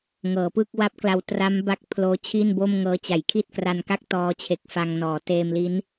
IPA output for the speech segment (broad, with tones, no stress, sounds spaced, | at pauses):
ŋ ɤː˩˦ p ɯ˥˩ k̚ w a˦˥ p̚ k l a˧ w t r a˦˥ m b a˦˥ k̚ pʰ l oː˦˥ t͡ɕʰ i˥˩ n b o˥˩ m ŋ ɤː˦˥ t͡ɕ a˩˦ j kʰ i˥˩ t̚ k r a˧ n k a˥˩ k̚ t ɔː˧ t͡ɕʰ e˨˩ k̚ f a˧ ŋ n ɔː˩˦ t eː˧ m l i˦˥ n